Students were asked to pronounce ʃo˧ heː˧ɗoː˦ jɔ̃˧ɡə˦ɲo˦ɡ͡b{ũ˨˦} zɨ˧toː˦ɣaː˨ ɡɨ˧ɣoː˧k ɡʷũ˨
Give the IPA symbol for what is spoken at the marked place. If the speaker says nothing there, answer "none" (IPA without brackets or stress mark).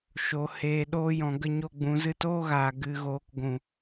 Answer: ũ˨˦